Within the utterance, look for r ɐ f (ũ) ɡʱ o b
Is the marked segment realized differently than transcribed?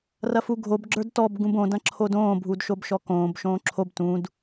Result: yes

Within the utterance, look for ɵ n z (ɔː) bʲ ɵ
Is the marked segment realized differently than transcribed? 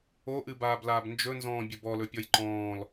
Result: yes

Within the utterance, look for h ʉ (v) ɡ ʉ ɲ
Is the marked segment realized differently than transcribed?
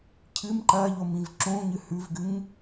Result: no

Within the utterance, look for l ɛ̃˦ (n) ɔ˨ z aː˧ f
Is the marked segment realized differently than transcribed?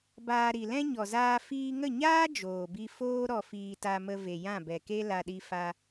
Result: yes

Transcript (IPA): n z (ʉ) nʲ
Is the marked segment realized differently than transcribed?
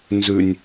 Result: no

